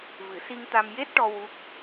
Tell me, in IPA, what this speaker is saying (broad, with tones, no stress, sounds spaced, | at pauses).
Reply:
v ɨ˨˩˦ s i˧ ŋ t̪ a˧ m j e˦˥ t̚ ʈ ɔ˧ w u˦˥ k̚